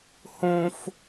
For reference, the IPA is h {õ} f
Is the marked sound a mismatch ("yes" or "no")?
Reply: no